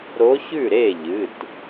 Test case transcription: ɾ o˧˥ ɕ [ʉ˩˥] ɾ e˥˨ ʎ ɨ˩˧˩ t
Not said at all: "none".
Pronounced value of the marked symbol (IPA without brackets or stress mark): ʉ˥˨